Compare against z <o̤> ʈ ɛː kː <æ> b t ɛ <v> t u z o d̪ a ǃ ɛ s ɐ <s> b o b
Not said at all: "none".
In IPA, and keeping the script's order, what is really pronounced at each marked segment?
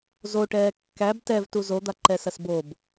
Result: o, æ, v, s

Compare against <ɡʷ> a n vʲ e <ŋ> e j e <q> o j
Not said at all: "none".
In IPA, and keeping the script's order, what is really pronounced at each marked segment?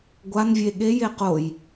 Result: ɡʷ, ɠ, q

